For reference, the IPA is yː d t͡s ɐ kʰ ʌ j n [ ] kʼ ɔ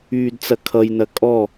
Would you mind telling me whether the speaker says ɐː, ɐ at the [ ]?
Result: ɐ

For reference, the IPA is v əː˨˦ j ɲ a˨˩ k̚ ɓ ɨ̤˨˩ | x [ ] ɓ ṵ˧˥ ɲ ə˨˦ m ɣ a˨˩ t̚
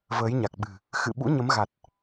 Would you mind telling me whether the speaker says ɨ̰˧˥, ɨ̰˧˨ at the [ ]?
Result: ɨ̰˧˨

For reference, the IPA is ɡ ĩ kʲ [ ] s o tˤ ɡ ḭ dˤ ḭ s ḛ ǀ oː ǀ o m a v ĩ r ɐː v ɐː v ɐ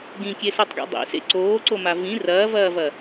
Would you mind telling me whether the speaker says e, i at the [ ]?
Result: e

